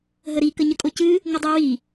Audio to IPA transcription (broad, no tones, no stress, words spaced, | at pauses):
ɦəɾi kəɲəkʼocɨ | ŋədˤɨ wi